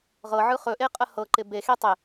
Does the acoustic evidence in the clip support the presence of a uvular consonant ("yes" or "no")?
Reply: yes